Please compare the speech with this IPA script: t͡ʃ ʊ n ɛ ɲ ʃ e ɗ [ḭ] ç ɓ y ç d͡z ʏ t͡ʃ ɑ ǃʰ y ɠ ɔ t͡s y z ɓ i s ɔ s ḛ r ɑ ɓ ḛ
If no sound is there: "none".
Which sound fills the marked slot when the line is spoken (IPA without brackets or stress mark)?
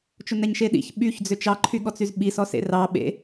ḭ